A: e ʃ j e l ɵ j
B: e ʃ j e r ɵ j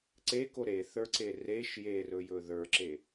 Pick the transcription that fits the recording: B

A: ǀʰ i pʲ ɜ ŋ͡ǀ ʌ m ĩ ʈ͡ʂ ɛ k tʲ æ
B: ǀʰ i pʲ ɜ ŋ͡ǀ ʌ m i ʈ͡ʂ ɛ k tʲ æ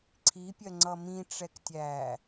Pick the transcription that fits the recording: A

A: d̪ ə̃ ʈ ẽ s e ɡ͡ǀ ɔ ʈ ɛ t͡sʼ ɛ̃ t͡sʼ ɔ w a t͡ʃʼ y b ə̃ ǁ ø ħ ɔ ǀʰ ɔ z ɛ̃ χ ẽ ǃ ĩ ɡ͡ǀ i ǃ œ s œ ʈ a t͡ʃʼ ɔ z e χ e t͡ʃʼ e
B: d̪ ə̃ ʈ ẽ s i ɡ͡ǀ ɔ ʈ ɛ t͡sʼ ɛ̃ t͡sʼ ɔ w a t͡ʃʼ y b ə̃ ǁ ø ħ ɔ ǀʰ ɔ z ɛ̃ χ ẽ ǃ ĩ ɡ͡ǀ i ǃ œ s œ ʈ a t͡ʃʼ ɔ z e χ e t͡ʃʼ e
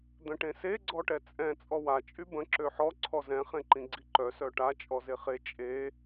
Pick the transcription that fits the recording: A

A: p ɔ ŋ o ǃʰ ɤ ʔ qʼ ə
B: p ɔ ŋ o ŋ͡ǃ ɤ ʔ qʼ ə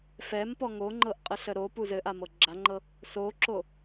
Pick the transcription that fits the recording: B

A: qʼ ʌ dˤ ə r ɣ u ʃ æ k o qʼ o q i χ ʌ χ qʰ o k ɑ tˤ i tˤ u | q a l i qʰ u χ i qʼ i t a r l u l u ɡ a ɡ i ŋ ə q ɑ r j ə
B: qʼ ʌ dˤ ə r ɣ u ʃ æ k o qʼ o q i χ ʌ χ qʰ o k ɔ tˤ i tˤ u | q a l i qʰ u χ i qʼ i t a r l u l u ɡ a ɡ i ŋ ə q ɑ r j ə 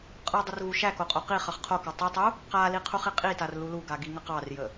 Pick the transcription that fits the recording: A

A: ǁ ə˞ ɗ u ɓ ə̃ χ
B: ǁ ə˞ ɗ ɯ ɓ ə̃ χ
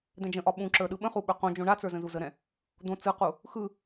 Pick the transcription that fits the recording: B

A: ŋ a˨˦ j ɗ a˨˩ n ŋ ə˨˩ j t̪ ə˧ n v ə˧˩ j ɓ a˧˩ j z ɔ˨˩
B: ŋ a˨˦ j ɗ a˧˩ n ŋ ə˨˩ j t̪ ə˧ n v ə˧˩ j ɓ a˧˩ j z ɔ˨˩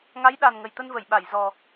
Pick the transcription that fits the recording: A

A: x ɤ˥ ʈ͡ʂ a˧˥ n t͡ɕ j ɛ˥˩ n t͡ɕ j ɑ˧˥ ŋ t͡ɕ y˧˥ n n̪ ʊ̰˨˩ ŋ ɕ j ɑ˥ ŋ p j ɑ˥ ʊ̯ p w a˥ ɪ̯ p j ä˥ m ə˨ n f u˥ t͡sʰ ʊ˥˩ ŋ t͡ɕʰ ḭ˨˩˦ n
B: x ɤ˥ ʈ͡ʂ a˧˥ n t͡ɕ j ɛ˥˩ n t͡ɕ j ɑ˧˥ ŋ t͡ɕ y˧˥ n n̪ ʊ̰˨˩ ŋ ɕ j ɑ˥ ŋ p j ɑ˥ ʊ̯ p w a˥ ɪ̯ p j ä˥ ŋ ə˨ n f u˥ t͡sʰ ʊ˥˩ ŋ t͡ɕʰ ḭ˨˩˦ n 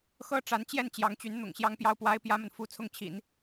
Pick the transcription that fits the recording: A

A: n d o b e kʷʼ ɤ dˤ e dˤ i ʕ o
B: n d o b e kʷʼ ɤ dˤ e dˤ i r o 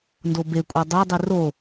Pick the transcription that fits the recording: B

